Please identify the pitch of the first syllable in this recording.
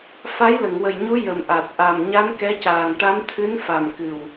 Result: rising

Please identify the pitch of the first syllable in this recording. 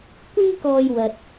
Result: high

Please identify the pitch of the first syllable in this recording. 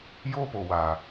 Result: high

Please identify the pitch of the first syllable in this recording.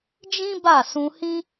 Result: high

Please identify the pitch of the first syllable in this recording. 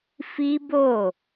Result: high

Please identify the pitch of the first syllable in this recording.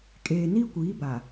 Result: low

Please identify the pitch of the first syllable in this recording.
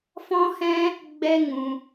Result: high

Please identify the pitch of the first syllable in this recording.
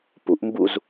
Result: rising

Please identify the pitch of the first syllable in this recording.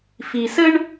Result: low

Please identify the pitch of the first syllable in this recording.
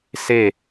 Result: falling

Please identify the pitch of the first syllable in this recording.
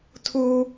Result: high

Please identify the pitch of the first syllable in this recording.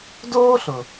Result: high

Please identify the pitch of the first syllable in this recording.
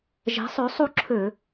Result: rising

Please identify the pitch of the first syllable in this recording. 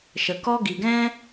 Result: low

